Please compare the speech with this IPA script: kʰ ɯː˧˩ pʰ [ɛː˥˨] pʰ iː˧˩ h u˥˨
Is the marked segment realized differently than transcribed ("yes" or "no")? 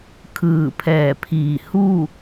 yes